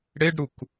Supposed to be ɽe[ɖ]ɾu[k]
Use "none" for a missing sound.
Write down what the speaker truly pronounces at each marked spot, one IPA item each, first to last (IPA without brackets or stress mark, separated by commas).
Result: ɖ, k